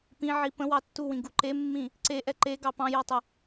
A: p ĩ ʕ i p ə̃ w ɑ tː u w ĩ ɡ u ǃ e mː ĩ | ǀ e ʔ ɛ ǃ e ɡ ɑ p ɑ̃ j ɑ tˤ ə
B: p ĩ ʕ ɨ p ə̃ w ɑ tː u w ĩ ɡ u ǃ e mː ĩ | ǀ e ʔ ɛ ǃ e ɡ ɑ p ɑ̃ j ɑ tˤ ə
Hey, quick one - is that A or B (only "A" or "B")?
A